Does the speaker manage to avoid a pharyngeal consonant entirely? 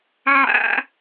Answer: no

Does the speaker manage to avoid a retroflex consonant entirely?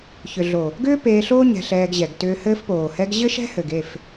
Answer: yes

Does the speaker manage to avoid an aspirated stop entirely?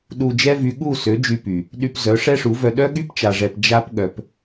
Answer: yes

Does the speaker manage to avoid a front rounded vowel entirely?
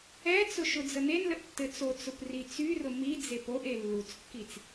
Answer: no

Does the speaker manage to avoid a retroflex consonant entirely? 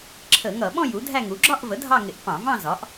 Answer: yes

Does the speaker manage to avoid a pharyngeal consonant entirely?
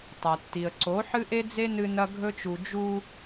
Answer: no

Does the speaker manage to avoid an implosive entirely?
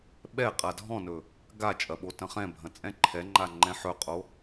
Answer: no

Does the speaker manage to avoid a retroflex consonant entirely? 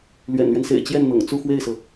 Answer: yes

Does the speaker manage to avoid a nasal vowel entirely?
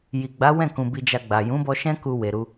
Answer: no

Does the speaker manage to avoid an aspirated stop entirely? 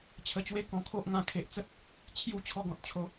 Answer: no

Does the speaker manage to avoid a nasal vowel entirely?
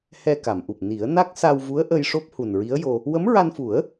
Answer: yes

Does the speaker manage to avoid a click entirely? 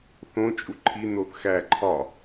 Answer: no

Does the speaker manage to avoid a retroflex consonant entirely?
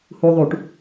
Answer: no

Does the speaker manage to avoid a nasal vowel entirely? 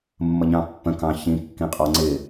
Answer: no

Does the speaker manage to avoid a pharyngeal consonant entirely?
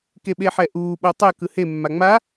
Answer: no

